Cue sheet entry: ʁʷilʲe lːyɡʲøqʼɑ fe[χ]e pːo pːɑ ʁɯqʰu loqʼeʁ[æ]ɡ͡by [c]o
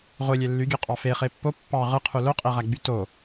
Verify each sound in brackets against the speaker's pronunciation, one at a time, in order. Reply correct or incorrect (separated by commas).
correct, correct, incorrect